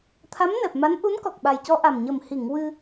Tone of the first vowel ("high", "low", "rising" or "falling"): rising